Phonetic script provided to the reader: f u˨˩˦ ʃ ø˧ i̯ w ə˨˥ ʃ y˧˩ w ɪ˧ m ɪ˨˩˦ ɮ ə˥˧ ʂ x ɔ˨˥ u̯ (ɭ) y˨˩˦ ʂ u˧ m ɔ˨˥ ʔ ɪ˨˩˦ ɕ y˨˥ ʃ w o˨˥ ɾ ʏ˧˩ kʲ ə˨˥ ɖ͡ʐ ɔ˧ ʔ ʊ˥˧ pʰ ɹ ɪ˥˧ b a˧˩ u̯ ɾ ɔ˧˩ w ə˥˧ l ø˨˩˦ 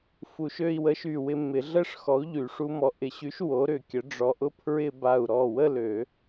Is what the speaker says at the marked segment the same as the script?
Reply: no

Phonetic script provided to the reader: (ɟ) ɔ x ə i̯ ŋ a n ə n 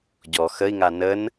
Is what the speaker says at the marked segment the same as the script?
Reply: yes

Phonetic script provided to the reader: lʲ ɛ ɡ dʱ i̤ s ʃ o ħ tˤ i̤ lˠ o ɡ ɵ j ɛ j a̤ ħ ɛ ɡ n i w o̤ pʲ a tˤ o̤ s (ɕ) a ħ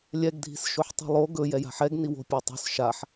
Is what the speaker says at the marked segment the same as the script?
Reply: no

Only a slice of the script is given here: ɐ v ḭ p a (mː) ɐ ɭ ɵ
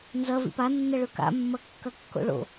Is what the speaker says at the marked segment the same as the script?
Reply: no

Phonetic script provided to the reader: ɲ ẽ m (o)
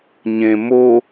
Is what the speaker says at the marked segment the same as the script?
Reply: yes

